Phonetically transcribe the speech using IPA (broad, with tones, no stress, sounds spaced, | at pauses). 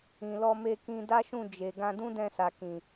ĩ˨ l ɔ˧ m e˧ k ĩ˧ d a˦ ʃ ũ˦˨ d͡ʒ e˨ ɡ ã˧ d ũ˦ d ɛ̃˧ s a˨ k ĩ˨